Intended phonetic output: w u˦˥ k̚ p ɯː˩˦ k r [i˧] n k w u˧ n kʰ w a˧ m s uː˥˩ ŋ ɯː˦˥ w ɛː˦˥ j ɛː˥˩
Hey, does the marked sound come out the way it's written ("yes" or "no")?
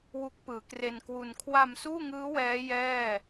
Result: no